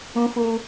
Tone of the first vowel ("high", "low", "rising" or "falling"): high